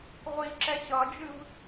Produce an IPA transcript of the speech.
ʁʷiǁɛ ɕʌd͡ʒɨv

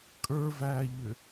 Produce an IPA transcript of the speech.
kʼə˞væːʎʏ

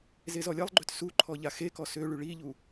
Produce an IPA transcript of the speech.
zezɔlʲɛlˠɡ͡ǃøt su ǃʰɔʎaxekɔ søɭy ɭiʎu

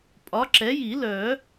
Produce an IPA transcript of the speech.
pʼɒ˨˥ǁɛ˨˥ ji˨˩˦lœ˨˩˦

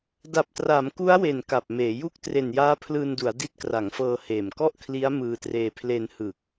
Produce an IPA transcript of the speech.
da˨˩p̚tra˩˦m ku˦˥a̯we˨˩n ka˨˩p̚meː˩˦ju˥˩k̚ tre˨˩njaː˦˥pʰlɯː˧ndu˩˦a̯ di˦˥t̚kra˩˦ŋfɤː˧heː˨˩m kɔ˥˩ʔkʰli˦˥a̯ mɯː˧treː˧ pʰle˧nhɯ˨˩k̚

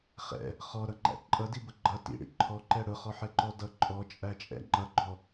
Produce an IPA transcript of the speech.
χɛ̰ | χɔɾʌŋ͡ǃæ̰ ǃʼʌdibʊ ɡ͡ǃʌ tḭɽḭ ǃʰɔǃɛ ɽʊχɔħɛǃɔ dʌ ǃʼɔt͡ʃʼæt͡ʃʼɛ̰ ŋ͡ǃʌɡ͡ǃɔ

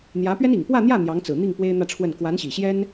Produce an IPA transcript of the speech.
n̪jä˧˥pɥɛ˥n i˨˩ŋpwä˥˧n̪jä˥˩ n̪jɑ˧˥ŋt͡sɹ̩˨˩n̪i˥˩ŋ pwe˥ɪ̯n̪ä˥˧ʈ͡ʂʰwə˥˩n kwa˧˥nɕi˨˩ ɕjɛ˥n

